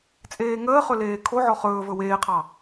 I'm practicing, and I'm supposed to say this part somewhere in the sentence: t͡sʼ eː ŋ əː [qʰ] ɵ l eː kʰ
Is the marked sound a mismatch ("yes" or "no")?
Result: yes